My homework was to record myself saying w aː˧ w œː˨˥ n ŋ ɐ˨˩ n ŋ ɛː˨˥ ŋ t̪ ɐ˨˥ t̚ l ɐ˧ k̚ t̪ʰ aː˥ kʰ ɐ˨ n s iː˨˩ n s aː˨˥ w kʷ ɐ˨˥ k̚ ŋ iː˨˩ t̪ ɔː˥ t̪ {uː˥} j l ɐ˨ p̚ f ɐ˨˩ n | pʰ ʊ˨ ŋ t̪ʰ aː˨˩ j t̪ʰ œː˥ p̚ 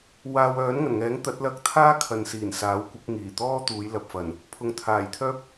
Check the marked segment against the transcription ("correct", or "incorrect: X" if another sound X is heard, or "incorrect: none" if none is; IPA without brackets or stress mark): incorrect: uː˨˧